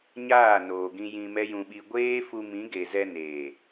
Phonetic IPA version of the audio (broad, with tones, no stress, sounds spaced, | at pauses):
ɲ aː˦˨ n oː˨ ɡ ĩ˧ j ĩ˧ m ɛ˦ j ũ˧ ɓ i˧ ɡʷ eː˦ f u˧ m ĩ˨˦ ɡ e˨ z ɛ˧ n eː˨